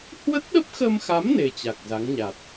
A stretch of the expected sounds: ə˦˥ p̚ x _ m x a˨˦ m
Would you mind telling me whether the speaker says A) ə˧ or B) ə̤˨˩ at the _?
A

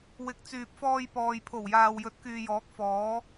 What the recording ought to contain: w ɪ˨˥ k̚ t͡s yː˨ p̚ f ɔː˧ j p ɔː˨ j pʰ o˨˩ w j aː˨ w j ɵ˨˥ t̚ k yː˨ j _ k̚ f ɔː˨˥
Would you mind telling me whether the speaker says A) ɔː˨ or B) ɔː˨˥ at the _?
B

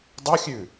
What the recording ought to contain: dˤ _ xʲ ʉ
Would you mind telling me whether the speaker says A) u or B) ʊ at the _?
B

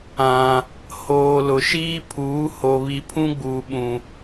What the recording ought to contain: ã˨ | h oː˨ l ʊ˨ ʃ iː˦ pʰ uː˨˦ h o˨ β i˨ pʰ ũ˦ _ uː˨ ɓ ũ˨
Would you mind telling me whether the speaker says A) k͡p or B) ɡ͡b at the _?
B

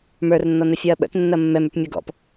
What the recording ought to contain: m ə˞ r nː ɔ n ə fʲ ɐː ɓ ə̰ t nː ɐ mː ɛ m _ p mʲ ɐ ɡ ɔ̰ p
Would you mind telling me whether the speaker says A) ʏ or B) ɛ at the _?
A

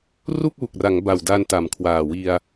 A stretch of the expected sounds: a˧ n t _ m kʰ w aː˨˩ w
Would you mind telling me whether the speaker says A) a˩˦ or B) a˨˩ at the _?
A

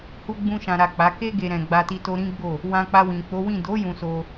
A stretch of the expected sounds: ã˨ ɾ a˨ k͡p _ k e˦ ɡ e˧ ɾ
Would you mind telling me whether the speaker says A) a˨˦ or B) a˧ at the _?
A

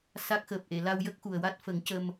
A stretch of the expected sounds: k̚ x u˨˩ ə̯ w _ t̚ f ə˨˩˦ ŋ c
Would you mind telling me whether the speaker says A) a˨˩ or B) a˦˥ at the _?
B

